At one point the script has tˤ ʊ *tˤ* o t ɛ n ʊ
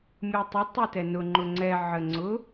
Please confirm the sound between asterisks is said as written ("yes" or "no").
yes